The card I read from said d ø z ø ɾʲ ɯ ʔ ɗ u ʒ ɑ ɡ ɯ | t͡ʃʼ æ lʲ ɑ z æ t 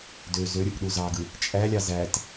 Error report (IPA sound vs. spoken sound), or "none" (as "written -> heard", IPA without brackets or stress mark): ʒ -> z